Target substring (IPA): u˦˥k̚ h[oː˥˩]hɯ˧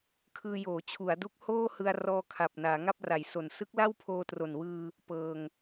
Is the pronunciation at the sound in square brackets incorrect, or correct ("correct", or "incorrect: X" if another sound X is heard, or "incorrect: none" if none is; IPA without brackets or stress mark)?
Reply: correct